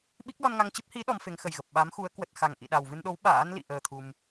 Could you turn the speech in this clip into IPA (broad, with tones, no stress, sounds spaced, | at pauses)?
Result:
ɓ i˦˥ k̚ l ɔ˧ n ŋ a˧ ŋ t͡ɕ ɨ˦˥ p̚ h i˨˦ ɗ ɔ˨˦ m f e˨˦ ŋ x ə˨˩ j ɣ ə˨˩ p̚ ɓ a˨˦ m x u˨˦ ə̯ k w ə˨˩ t̚ x a˨˩ ŋ ʔ ḭ˧˨ ɗ a˨˩ w v ɨ˧ n ɗ o˨˦ w ɓ a̰ː˧˥ n l ḭ˧˨ ʔ əː˧ t̪ʰ u˧ m